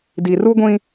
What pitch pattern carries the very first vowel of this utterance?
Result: low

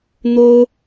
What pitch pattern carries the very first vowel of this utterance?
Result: high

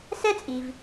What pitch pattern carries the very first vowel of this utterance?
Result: high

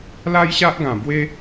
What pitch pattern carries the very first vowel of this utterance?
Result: high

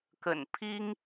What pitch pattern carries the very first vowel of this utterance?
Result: low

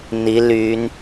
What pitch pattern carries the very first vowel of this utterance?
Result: rising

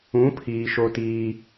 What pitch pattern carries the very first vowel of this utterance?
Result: rising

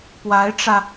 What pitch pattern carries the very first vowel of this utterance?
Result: rising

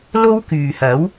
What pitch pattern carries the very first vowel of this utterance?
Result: high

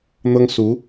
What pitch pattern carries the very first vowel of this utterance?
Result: high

